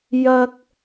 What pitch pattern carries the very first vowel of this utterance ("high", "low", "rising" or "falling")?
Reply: high